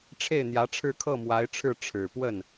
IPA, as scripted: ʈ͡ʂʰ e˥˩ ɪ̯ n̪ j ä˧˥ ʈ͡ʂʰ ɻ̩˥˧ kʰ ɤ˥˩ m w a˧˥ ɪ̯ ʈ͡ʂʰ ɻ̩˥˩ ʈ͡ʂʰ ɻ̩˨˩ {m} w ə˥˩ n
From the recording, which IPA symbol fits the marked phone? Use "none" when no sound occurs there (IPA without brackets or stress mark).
p